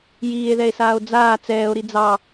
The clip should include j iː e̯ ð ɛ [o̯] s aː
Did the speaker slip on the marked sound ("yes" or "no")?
yes